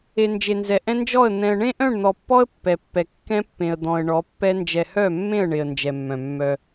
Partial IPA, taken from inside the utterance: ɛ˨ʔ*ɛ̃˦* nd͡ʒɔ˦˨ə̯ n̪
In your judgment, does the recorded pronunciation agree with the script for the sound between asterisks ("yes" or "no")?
yes